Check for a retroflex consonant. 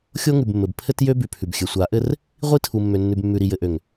absent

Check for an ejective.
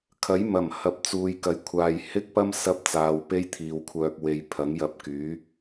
absent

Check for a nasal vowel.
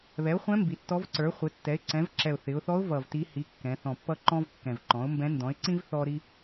present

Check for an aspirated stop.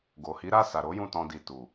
absent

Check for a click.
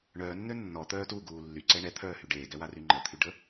present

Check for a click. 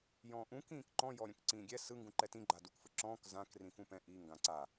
present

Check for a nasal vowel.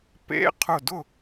absent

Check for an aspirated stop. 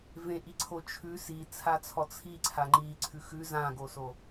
present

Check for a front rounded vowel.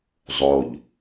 absent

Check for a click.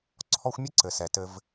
present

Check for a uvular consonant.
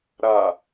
absent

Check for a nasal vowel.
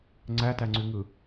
absent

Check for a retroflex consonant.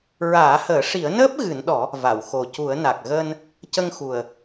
present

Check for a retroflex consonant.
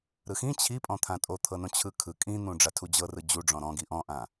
present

